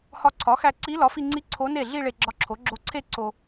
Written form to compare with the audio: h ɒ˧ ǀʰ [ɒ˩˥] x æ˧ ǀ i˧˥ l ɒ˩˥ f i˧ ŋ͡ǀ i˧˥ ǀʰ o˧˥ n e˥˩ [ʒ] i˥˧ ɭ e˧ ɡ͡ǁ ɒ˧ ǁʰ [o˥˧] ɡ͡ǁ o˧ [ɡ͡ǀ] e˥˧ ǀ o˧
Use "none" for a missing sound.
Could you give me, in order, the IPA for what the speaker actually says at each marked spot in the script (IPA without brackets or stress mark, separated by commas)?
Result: ɒ˩˥, ɮ, o˩˥, ǀʰ